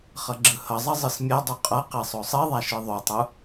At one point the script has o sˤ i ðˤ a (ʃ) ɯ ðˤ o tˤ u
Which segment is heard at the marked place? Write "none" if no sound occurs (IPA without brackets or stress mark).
ʃ